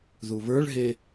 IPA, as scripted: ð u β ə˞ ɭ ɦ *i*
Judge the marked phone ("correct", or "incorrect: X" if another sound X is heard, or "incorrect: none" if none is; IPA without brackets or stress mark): incorrect: e